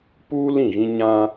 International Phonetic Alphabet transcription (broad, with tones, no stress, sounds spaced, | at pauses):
p uː˦ l ĩ˦˨ ɣ ĩ˦ ɲ ã˦